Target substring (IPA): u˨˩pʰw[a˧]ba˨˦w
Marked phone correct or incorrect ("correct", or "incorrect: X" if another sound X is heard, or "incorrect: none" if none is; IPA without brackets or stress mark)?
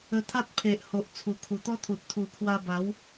correct